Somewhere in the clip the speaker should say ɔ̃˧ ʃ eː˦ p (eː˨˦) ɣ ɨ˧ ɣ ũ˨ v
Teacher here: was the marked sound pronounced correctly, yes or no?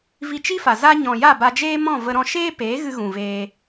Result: yes